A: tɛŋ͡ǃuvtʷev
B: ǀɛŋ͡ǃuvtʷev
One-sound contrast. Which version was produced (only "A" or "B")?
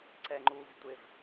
B